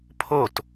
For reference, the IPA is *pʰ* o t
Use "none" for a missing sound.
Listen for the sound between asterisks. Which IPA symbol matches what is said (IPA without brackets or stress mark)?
pʰ